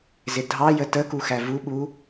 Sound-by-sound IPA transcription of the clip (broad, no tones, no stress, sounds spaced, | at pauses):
z ɪ dʱ ɑ j ə t ə k u x æ v u ɓ u